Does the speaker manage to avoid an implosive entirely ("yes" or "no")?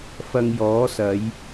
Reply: yes